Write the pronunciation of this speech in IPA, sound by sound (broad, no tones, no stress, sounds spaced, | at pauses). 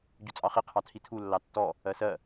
ɟ u t͡sʼ ɑ χ i qʰ ɑ tʰ i tʰ u lː ɑ tː ɔ | ɜ s ɜ